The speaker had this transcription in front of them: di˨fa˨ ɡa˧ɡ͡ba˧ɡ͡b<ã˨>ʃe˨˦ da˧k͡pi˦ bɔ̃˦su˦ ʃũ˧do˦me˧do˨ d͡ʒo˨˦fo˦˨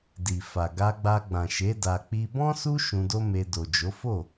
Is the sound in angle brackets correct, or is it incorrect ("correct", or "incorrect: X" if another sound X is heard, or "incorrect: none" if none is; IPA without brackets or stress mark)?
correct